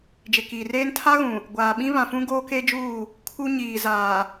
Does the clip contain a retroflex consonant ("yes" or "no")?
no